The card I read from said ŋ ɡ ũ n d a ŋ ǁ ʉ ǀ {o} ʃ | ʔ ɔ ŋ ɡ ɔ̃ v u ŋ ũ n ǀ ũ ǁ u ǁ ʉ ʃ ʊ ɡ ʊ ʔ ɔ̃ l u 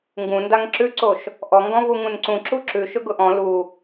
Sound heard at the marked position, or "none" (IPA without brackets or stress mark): o